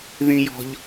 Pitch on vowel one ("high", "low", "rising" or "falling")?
high